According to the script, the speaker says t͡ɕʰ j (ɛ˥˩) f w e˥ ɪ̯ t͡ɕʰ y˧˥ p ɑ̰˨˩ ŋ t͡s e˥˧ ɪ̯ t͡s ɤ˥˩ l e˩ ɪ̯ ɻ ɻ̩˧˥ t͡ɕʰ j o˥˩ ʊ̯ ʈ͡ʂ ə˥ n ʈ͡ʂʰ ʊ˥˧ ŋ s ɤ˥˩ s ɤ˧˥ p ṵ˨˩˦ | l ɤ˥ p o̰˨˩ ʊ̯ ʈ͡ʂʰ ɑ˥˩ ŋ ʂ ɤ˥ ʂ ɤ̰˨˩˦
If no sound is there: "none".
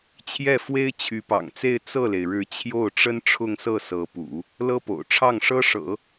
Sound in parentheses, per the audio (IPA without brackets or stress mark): ɛ˥˩